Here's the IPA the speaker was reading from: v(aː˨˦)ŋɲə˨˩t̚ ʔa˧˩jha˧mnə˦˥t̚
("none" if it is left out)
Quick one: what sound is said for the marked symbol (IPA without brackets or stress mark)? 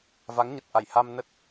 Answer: a˨˦